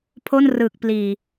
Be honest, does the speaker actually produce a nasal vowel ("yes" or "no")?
no